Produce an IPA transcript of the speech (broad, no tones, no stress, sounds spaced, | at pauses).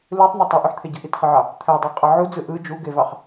l ɯ tˤ n̪ o tˤ ɯ ʔ y ħ t̪ʰ e ɟ ɯ ʔ i t χ ɯ ʕ ɑ | t̪ʰ æ dˤ æ qʼ ɑ ʕ u d͡z ɯ ʔ ɯ d͡ʒ u ɡ e v ɑ χ